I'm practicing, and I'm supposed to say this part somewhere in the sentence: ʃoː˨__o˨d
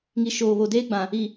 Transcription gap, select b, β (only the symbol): β